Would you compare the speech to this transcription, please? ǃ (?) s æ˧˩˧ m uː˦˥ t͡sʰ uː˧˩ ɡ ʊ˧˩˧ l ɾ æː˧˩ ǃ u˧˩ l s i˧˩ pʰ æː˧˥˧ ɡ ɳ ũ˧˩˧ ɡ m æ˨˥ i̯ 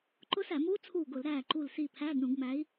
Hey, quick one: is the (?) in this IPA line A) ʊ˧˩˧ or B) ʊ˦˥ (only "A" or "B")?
B